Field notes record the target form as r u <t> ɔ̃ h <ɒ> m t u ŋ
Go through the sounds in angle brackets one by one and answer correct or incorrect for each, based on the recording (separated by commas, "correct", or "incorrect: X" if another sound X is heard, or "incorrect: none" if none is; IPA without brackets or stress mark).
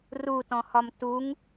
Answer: correct, correct